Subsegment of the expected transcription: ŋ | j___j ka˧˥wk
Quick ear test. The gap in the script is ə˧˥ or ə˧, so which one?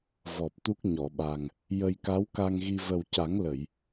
ə˧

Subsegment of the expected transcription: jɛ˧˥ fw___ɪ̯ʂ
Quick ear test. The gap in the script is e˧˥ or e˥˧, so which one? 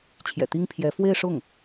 e˥˧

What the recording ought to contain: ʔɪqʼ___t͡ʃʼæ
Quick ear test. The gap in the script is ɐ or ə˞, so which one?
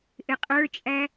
ə˞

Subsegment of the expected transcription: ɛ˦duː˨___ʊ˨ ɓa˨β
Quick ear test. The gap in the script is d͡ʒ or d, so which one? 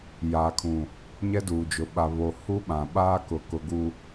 d͡ʒ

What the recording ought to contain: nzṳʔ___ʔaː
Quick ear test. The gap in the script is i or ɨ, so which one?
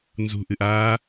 ɨ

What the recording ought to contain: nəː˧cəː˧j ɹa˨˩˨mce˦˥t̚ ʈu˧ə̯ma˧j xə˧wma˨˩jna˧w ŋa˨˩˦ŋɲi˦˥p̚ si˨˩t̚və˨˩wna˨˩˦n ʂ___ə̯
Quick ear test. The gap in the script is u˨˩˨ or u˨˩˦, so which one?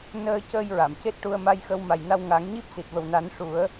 u˨˩˦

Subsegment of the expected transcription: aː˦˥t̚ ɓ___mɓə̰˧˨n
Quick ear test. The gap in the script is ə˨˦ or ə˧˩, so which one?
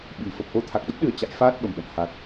ə˧˩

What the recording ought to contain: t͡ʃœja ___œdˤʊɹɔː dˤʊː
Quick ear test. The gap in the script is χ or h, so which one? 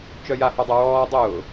h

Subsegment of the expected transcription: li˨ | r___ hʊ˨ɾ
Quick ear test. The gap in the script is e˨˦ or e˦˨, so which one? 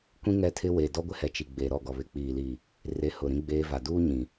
e˨˦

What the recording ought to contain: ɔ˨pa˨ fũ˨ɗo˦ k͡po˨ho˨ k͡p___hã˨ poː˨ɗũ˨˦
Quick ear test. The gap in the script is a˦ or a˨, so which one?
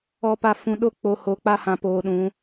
a˦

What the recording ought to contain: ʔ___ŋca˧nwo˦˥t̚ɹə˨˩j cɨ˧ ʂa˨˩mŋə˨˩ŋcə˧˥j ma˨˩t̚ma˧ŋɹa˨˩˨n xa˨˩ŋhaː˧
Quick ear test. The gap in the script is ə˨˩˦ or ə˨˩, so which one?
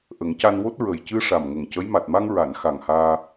ə˨˩˦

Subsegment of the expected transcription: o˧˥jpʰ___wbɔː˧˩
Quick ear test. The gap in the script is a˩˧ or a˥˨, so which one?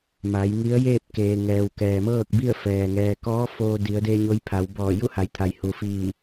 a˩˧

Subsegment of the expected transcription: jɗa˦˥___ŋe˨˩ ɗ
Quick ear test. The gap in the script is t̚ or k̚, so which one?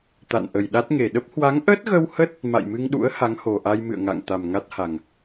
t̚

